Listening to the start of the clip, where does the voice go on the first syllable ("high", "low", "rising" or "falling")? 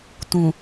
low